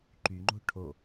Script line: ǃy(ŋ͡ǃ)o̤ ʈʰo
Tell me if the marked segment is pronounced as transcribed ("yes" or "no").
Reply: yes